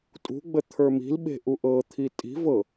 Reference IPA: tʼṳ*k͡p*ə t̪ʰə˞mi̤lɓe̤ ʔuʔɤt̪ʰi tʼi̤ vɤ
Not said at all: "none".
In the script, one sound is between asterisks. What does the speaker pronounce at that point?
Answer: ɡ͡b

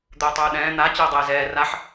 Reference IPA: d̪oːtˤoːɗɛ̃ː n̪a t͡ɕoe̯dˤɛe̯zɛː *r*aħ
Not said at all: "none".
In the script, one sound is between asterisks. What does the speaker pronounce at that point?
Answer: r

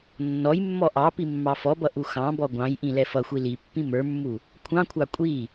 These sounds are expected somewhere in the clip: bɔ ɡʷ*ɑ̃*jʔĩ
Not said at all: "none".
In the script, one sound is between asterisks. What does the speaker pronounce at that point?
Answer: ɑ̃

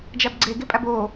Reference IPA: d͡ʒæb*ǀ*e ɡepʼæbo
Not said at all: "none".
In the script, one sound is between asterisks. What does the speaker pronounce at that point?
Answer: ɡ͡ǀ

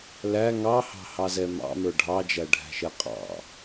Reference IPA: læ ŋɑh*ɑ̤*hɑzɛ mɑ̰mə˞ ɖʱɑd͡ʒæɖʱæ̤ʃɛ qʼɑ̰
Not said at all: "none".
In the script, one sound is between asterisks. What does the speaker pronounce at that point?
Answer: ɑ̤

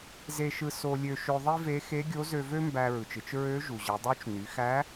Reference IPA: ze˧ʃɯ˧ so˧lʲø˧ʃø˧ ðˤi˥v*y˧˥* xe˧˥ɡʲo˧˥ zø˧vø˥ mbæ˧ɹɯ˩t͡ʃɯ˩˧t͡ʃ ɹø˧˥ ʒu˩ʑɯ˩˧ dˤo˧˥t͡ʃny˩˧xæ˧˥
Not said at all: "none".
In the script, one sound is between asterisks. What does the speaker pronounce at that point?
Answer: e˧˥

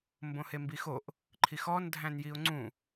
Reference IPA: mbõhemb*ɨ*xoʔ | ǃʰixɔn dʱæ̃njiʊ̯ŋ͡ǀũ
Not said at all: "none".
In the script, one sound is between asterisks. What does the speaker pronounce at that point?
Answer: i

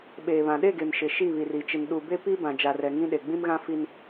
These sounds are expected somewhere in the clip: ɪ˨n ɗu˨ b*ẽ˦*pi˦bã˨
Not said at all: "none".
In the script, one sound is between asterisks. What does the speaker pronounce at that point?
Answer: e˦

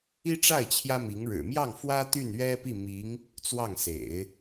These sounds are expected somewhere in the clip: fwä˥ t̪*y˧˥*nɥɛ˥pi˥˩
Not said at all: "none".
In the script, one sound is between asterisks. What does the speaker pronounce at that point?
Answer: y˥˩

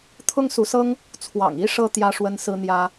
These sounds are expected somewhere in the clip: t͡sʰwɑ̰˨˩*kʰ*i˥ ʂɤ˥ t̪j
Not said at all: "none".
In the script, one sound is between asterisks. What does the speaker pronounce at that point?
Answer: ŋ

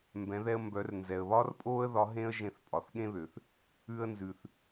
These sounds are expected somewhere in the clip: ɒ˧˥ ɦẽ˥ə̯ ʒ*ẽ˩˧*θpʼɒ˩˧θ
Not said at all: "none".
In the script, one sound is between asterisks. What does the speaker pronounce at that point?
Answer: ẽ˧˥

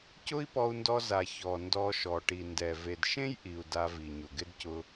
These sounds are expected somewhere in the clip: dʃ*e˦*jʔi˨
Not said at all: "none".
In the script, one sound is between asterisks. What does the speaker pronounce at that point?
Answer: ẽ˦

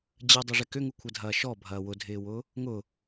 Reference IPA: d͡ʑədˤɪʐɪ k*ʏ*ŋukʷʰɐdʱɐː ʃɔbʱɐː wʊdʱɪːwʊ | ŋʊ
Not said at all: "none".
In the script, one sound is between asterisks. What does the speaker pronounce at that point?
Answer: ʏ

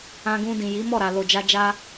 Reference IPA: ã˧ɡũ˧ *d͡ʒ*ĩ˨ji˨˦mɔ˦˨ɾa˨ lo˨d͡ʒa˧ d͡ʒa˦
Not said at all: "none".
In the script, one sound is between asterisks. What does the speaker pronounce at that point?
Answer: d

